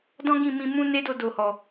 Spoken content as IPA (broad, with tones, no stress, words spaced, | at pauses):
dɔ̃˦ɡĩ˦˨mĩ˧mũ˦ ne˦do˧do˨hɔ˨